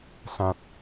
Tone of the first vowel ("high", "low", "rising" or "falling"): low